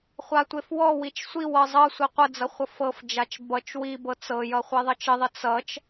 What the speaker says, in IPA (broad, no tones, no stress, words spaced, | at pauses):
χʷatʷefwɔwit͡ʃ sʷiwɤ zˤɤsʷi qʷəd͡zʌ χʷʌfɤfd͡ʒat͡ʃ bʌt͡ʃ wibɤ t͡sɤjʌ χʷeðˤʌt͡ʃəðˤə t͡sʌt͡ʃ